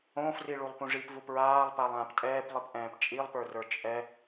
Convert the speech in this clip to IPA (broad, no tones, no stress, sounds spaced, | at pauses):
õ f r i ɭ u lˠ p ũ ʐ i p v u p ɹ aː lˠ p a lˠ ãː p tʼ ɛː p lˠ i p ʔ ɛ̃ː p t͡ʃʼ i lˠ p ə˞ r ə˞ t͡ʃʼ ɛ